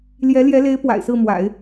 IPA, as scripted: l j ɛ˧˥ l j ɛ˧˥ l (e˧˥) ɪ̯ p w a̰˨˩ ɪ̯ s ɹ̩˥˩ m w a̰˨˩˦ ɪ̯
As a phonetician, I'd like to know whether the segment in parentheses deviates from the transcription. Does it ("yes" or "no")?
no